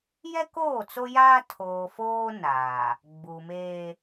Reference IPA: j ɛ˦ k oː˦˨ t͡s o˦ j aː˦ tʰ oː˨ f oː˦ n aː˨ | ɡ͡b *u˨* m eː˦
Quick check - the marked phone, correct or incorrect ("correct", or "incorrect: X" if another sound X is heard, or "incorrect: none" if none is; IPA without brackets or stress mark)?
correct